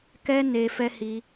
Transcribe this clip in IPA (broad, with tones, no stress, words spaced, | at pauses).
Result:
kɛ˦ ne˧fɛ˦ hi˦